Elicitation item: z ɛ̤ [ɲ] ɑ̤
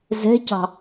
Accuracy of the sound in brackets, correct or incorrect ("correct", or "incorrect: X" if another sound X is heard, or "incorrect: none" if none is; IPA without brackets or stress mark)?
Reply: incorrect: c